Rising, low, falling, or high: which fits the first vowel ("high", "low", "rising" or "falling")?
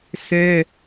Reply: high